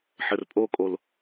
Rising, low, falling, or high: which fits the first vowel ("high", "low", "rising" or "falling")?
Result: low